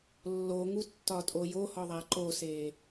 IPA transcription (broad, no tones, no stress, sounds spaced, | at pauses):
lː o ŋ u tː ɒ tʼ o j o h ɒ ðˤ æ ǃ o s eː